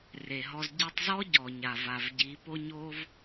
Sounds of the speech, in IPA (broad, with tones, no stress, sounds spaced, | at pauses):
r e˨ ɦ ɔ˧ z ɟ i˧ tˤ z ɔ˦ ɟ ɔ˨ ɲ a˨ v a˨ v ɟ i˨˦ p o˦ ɲ o˦ v